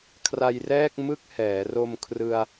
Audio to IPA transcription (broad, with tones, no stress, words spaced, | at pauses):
kʰra˧jrɛː˥˩k̚mɯ˥˩k̚ hɛː˩˦ro˧m kʰrɯ˧a̯